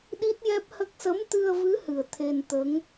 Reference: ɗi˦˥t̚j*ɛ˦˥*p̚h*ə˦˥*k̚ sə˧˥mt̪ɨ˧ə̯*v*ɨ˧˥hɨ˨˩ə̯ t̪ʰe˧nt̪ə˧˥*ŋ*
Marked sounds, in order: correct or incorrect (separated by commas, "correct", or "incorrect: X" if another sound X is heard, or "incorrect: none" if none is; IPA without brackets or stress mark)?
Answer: correct, correct, correct, correct